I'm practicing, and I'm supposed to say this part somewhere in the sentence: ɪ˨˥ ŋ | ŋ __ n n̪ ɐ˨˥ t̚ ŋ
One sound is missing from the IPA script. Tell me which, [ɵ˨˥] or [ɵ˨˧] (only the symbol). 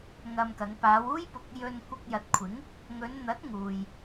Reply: ɵ˨˧